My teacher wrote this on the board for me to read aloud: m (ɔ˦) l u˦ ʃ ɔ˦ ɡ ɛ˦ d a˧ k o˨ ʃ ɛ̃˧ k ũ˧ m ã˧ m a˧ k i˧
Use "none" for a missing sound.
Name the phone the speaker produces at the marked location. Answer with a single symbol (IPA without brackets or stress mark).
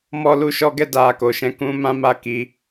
ɔ˦